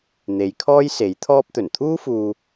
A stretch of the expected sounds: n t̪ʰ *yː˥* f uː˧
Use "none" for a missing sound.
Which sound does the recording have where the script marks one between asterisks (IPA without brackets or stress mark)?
uː˥